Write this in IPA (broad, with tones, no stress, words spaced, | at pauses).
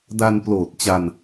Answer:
da˧nploː˨˩t̚t͡ɕa˧n